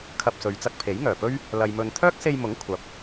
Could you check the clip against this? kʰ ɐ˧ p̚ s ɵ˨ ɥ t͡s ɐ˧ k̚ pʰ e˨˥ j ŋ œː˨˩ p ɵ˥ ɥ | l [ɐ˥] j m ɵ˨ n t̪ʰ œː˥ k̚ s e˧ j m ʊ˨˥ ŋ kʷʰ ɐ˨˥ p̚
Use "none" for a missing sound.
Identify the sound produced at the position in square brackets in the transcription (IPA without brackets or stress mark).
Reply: ɐ˨